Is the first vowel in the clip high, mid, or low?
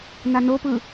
low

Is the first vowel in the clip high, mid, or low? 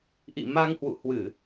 high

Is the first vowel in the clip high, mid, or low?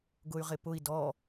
high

